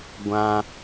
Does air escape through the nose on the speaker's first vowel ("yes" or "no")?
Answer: yes